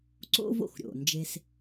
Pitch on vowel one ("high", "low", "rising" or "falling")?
high